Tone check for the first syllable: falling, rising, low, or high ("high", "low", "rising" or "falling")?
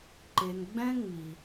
low